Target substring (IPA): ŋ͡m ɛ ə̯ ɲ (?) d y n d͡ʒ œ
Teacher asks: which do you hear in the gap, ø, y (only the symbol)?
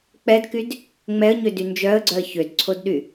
ø